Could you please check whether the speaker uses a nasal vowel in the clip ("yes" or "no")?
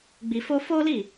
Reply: no